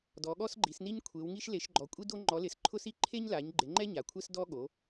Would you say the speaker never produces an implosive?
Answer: no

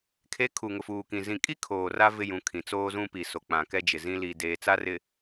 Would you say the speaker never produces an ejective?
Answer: no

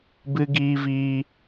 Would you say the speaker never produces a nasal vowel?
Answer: yes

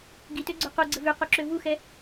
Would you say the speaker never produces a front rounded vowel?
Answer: no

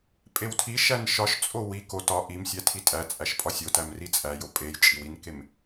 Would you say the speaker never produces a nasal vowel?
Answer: yes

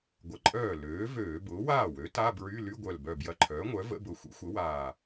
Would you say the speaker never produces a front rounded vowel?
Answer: no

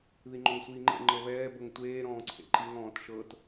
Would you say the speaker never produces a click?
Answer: no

